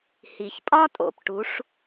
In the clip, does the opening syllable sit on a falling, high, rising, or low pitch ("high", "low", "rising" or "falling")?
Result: low